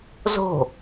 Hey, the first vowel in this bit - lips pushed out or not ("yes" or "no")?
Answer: yes